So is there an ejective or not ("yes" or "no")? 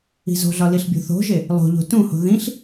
no